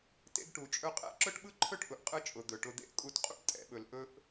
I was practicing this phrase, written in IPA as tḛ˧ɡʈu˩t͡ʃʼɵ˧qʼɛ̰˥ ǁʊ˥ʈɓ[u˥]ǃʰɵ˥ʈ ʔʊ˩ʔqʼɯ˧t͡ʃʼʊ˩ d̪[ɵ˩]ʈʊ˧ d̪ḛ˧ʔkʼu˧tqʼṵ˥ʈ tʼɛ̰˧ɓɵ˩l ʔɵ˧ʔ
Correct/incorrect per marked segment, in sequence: incorrect: ɯ˥, correct

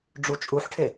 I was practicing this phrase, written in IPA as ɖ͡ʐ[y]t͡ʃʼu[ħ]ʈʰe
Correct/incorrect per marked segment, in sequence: incorrect: u, correct

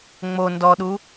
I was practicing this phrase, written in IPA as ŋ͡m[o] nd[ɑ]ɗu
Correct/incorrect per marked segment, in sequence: correct, incorrect: ɔ

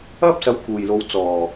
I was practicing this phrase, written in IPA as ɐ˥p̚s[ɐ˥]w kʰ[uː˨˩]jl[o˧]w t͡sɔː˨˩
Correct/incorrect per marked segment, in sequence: incorrect: ɐ˨˥, correct, incorrect: o˨˧

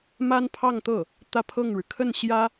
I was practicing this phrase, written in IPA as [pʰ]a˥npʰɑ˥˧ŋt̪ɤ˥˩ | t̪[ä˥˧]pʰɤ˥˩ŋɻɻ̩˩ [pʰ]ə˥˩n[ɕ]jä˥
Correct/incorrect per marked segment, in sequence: incorrect: m, correct, incorrect: kʰ, correct

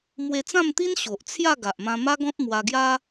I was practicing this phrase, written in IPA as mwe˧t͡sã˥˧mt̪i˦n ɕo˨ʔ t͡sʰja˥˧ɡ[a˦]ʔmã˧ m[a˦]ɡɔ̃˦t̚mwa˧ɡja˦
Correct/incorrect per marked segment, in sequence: incorrect: a˨, correct

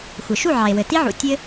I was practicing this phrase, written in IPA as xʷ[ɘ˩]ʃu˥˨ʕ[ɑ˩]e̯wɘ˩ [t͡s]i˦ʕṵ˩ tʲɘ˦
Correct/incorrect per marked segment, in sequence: correct, correct, incorrect: t

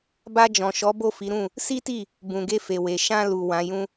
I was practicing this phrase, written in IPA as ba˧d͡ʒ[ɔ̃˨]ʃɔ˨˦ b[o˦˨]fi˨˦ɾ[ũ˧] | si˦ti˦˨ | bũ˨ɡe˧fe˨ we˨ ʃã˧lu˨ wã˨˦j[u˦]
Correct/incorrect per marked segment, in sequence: correct, correct, incorrect: ũ˦˨, incorrect: ũ˦

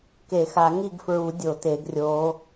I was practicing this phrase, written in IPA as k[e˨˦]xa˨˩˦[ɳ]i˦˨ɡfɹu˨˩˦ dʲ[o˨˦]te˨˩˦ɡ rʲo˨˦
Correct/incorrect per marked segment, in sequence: incorrect: e˨˩˦, incorrect: ŋ, incorrect: o˨˩˦

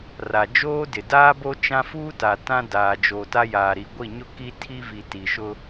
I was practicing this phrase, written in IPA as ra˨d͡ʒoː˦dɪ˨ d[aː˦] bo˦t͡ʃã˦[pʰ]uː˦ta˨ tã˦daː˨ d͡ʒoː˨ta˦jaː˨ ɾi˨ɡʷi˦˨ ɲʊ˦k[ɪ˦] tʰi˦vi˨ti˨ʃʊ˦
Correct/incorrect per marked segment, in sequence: correct, incorrect: f, incorrect: i˦

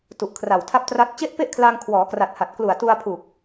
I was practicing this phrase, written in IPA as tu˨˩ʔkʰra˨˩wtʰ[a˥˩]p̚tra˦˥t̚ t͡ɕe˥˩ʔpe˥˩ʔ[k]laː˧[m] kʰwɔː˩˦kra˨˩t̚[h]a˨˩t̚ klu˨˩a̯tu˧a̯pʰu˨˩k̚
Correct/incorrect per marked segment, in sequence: incorrect: a˦˥, incorrect: kʰ, incorrect: ŋ, correct

